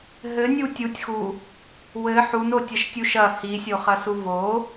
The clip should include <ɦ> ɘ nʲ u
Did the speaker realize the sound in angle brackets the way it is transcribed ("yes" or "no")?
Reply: yes